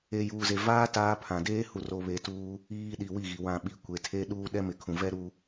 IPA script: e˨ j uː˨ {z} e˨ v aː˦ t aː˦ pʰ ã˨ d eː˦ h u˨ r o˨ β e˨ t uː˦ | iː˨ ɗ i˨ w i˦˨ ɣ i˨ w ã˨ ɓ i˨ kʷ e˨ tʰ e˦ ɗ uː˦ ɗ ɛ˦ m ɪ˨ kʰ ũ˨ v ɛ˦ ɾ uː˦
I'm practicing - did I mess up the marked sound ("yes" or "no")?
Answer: no